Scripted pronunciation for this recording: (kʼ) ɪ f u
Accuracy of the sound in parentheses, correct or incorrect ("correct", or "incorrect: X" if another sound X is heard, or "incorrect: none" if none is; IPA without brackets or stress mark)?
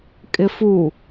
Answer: correct